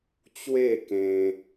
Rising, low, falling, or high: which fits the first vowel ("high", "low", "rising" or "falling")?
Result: falling